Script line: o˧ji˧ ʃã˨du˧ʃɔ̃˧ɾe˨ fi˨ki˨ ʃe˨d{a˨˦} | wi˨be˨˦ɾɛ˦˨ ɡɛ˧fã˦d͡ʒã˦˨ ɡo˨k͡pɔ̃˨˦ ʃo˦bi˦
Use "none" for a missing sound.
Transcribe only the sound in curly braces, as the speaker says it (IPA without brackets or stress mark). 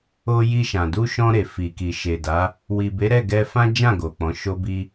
a˨˦